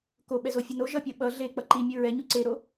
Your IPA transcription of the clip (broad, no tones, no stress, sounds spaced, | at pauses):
k o ɓ ɛ z o fʲ ɯ n o ʒ ʌ pʲ ʌ ɓ ʌ ɮ e k͡p ʌ ǃ i mʲ ɯ ɹ ɛ ɲ u ǀ e ɾ o